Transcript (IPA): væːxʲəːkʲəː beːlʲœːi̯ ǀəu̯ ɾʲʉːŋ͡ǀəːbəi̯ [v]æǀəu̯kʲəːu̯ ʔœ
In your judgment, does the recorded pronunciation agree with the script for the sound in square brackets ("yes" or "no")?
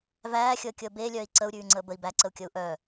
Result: no